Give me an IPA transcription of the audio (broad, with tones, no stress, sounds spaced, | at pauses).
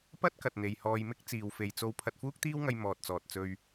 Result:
p ɐ˥ t̚ k ɐ˨ t̚ n̪ e˨ j h ɔː˧ j m ɪ˥ k̚ t͡s iː˨ w f e˨ j t͡s o˧ w pʰ ɐ˧ t̚ f uː˥ k̚ t̪ iː˥ w ŋ ɐ˧ j m ɔː˨ t̚ t͡s ɔː˨ t̚ t͡s ɵ˧ ɥ